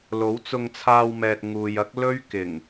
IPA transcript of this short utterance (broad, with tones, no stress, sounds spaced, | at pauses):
l o˨˥ w t͡s ʊ˧ ŋ t͡sʰ aː˧ w m ɛː˨ t̚ ŋ uː˨ j ɐ˥ k̚ l ɵ˥ ɥ k ɪ˨˩ ŋ